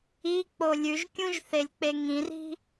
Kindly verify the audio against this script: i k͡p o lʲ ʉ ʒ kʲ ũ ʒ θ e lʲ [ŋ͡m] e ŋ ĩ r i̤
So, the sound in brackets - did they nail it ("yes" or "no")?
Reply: no